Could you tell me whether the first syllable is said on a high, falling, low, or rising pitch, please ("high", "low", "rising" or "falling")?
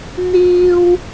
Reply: high